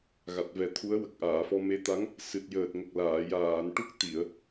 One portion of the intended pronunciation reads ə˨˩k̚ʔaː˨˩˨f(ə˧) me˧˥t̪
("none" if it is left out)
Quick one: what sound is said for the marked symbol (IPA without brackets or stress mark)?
ɔ˧